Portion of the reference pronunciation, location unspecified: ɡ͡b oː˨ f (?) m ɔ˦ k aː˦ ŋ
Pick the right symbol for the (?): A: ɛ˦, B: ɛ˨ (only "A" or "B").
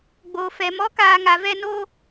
B